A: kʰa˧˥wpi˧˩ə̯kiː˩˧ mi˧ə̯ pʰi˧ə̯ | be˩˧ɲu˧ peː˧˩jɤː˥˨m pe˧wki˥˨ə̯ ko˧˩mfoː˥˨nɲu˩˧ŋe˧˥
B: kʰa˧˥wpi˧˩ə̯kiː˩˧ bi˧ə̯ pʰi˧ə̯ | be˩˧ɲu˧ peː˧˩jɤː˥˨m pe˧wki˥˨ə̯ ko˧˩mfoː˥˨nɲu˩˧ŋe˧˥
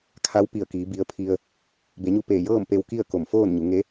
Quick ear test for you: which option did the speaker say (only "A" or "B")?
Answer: B